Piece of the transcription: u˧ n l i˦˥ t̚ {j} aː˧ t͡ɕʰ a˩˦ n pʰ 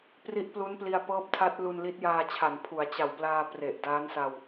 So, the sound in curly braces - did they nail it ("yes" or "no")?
yes